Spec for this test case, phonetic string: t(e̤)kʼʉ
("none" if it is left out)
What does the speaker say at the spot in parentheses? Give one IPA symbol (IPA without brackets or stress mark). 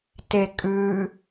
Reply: e